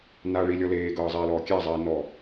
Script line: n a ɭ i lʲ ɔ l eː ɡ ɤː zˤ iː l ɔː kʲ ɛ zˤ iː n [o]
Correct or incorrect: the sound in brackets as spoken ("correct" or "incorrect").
incorrect